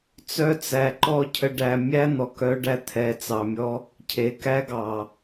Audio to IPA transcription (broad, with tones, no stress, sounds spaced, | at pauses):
t͡s œ˦ t͡s æ˧ ǃ ɔ˦ cʰ ə˧ ɖ æ˧ mʲ æ˦ n̪ ɔ˨ k œ˧ ɖ æ˧ t̪ʰ ɛ˨ t͡s ɑ˨ mʲ ɔ˧ | cʰ e˨ k æ˦ ɡ ɑ˨